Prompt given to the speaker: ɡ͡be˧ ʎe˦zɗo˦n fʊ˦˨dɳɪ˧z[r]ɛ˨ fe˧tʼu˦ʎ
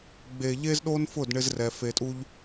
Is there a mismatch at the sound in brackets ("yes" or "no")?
no